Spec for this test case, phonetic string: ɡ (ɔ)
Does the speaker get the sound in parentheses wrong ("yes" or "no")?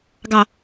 yes